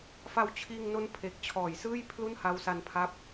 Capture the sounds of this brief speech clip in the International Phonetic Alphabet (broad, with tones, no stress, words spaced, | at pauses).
fa˧wt͡ɕʰiː˧ŋno˦˥n pʰe˨˩k̚t͡ɕʰɔː˨˩jsɯː˥˩j pʰlu˥˩nha˦˥wsa˧npʰa˦˥p̚